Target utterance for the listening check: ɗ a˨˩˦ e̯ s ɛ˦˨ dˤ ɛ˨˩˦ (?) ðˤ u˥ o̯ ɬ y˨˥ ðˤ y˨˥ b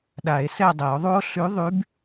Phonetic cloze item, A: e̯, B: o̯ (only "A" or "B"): B